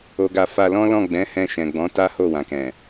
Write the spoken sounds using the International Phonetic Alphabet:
o˨ɡa˨ fa˧ lɔ̃˦lɔ̃˦˨ɡ͡bɛ̃˨˦ hɛ̃˧ ʃɛ̃˨ɡ͡bɔ̃˨˦ ta˦ho˦˨wã˨kɛ̃˨

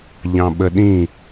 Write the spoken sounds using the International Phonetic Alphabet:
ʎɑ̃ɓəɗĩ

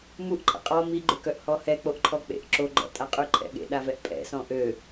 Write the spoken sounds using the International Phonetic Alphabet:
muʔ ǃʰə̰qʼɔ miɡ͡ǃøkœʔ hɔhɛ k͡poʔǃʰɔk͡pḛʔ ǁoɡ͡ǃɔ̰tʼa qʼyǃʰɛ̰ɠḛ ɗavɛʔpʼɛ̰ sɔ̃ʔø

